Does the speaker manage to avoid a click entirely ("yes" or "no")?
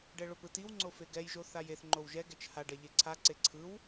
no